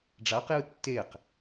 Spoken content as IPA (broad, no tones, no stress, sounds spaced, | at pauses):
ɖ͡ʐ a q j ɯ tː e q